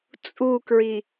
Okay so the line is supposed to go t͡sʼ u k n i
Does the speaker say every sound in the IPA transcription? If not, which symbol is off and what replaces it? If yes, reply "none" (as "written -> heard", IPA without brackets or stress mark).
n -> ɹ